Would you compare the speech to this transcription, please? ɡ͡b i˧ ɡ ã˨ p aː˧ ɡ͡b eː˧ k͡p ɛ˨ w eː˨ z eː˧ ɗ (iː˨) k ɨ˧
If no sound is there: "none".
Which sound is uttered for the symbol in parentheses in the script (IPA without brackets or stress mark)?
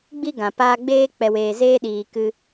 iː˨